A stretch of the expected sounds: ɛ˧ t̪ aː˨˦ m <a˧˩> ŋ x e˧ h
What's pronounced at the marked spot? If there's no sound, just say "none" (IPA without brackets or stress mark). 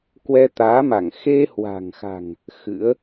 a˧˩